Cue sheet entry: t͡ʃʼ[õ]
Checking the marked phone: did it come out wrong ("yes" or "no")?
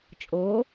yes